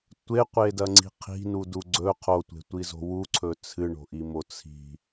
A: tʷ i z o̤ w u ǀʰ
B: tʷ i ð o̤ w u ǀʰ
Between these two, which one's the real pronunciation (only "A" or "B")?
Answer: A